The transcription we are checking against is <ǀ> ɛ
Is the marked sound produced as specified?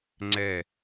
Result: no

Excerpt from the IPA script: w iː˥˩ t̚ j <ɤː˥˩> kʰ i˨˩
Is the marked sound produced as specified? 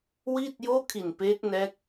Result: no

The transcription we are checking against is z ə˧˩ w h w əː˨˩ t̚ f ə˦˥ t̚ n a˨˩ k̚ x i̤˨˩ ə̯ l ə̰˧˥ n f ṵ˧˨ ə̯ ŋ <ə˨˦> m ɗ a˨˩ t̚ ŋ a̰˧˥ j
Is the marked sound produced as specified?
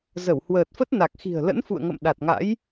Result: no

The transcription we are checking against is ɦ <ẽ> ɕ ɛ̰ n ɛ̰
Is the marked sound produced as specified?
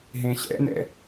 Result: yes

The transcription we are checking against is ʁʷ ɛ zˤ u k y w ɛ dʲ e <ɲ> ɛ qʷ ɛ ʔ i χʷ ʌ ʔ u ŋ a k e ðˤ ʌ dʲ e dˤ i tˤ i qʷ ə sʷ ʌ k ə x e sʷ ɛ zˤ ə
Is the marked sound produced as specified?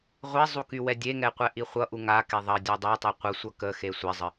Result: no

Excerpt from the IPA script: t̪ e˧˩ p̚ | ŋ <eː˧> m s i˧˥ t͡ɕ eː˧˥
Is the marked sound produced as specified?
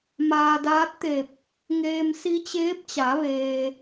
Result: yes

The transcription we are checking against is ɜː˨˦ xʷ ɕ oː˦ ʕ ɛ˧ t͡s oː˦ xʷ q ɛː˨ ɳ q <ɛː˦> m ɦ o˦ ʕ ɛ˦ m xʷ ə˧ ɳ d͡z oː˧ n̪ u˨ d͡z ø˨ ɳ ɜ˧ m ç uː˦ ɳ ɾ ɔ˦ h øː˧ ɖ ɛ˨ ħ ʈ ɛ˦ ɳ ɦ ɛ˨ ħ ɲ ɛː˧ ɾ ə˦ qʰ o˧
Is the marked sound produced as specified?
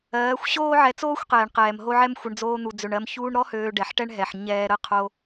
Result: no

